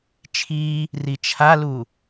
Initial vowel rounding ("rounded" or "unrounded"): unrounded